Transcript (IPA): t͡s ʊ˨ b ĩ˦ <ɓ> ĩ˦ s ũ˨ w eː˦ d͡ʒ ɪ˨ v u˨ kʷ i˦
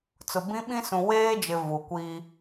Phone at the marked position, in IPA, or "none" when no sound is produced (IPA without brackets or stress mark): ɓ